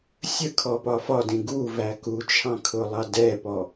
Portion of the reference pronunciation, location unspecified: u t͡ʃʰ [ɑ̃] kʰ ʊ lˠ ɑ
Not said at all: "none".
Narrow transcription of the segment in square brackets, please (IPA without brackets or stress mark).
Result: ɑ̃